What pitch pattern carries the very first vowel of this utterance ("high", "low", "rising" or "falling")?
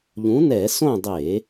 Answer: rising